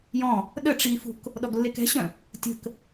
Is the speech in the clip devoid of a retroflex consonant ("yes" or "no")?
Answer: no